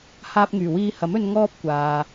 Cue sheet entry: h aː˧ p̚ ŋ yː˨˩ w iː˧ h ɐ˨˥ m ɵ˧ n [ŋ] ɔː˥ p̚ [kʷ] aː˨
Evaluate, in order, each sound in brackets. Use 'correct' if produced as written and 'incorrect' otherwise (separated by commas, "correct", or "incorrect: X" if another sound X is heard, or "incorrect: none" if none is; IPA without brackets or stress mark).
correct, correct